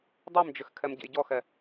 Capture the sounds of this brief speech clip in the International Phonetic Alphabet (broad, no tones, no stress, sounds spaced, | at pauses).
dˤ i m d͡ʒ ʏ x kʰ ɛ m ɟ ɛ̰ j ɟ ɔ x ɛ